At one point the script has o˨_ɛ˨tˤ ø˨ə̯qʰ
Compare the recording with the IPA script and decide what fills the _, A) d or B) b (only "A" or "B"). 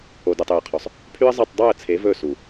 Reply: A